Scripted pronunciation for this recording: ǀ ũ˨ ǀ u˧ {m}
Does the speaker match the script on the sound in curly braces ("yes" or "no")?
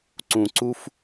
no